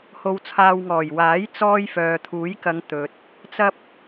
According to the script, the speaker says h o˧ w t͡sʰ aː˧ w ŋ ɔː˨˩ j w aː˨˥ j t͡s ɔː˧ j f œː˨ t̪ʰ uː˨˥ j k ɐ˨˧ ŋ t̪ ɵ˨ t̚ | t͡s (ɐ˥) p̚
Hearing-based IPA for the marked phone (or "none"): ɐ˥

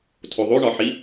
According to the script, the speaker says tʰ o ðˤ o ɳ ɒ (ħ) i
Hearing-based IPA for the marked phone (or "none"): ħ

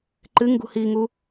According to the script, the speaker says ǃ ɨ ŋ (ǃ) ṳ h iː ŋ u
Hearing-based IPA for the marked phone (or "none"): ɡ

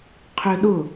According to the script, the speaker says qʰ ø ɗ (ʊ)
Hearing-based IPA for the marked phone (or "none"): ʊ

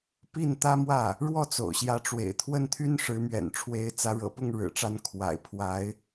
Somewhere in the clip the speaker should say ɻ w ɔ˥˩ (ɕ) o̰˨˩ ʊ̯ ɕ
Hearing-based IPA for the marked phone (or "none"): t͡s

